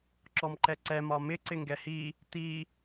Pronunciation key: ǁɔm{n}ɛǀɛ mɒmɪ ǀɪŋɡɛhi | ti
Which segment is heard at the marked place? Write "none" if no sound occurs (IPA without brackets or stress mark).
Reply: ǃ